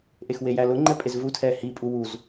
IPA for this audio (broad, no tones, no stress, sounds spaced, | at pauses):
ʔ e x w e j æ l ʊ ŋ͡ǃ ɛ pʼ e z v u tʰ ɛ h i pʼ u w u z